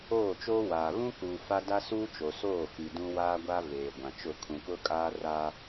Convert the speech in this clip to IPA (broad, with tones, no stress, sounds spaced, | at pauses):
oː˦˨ t͡ʃ oː˦ w aː˨ β ũ˦ k uː˨ f a˦ d a˦ s uː˦ t͡ʃ o˨ s oː˦˨ f i˨ d ũ˦ w aː˦ ɡʷ a˦ v eː˨ ɡʷ ã˨ t͡ʃ ʊ˦˨ kʰ ũ˨ k ʊ˦ kʼ aː˦ r aː˦